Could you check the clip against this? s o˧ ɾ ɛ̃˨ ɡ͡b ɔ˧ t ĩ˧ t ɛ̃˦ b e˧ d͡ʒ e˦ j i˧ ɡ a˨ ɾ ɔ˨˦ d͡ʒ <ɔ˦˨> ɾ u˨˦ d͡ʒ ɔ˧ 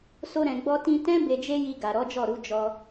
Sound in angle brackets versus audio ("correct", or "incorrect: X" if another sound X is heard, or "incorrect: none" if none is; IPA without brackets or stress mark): correct